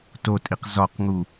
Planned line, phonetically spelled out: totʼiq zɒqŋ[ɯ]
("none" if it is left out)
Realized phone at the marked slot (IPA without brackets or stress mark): u